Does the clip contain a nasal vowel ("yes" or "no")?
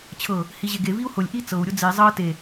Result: no